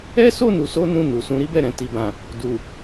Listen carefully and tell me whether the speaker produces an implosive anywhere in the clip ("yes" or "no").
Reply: no